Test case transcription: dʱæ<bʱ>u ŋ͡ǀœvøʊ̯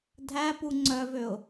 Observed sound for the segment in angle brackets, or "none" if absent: p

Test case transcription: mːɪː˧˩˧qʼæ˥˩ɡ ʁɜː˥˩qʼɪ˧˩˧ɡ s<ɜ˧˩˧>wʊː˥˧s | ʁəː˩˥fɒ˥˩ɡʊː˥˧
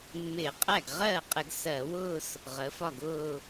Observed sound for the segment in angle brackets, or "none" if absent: ɜ˧˩˧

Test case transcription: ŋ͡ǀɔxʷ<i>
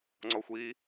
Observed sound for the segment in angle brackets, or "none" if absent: i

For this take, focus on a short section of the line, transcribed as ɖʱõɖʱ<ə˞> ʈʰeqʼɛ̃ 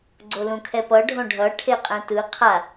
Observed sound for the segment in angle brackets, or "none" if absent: ʌ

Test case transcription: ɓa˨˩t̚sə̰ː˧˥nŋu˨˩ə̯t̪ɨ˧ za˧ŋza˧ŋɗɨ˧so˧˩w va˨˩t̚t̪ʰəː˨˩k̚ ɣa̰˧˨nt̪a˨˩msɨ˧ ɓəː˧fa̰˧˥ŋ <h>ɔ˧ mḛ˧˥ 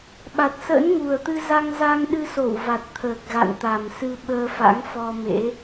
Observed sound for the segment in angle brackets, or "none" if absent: f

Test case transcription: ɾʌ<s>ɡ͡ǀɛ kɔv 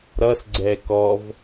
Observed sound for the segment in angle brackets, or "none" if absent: s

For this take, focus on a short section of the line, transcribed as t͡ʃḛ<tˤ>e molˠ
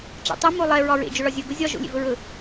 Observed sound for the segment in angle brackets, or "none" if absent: tˤ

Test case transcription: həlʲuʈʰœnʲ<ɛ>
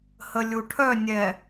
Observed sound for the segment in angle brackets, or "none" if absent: ɛ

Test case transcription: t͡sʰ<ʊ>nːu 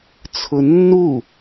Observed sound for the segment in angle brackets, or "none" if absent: ʊ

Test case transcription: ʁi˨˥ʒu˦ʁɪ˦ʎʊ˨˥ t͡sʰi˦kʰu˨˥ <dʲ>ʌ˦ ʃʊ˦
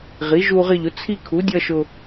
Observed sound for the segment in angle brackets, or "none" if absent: dʲ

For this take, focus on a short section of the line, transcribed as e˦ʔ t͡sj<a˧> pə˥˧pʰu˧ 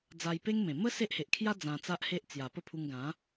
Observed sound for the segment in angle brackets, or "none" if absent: a˨˩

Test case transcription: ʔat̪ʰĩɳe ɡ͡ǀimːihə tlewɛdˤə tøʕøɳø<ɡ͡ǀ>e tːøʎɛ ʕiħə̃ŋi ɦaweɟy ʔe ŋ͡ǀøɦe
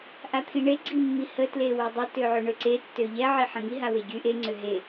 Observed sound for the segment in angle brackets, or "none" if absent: ǀ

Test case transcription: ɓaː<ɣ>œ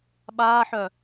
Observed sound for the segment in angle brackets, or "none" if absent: ħ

